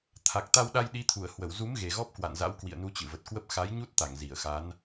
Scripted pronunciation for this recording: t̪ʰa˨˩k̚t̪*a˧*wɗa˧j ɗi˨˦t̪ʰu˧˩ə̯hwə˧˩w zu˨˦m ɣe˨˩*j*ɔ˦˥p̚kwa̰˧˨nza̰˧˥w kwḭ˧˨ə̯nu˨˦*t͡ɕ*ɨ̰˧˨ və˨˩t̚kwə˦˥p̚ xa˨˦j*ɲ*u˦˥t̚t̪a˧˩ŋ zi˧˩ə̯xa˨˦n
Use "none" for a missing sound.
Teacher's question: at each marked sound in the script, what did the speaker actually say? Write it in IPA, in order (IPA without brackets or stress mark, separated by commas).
a˧, ɣ, t͡ɕ, ɲ